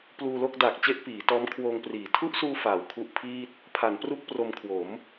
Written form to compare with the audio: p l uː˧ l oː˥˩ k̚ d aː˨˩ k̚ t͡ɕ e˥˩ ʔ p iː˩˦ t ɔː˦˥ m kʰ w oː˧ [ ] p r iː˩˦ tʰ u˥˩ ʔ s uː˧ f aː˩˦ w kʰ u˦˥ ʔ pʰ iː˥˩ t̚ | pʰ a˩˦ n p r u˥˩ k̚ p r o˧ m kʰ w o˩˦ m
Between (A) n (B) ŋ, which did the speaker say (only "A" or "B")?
B